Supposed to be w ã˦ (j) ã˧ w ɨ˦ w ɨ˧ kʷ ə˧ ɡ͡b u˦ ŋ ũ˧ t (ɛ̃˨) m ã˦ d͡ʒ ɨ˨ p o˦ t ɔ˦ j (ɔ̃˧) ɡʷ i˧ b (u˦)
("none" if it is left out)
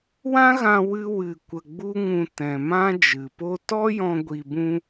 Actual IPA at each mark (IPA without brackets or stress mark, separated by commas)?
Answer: ɣ, ɛ̃˨, ɔ̃˧, ũ˦